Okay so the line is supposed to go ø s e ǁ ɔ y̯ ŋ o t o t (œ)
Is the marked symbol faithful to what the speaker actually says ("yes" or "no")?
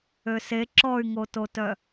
yes